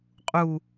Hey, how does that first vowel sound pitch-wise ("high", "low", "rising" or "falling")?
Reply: low